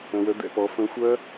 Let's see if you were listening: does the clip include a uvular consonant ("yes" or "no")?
no